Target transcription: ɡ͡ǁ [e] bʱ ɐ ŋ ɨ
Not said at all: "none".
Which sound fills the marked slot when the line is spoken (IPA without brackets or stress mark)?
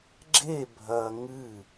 e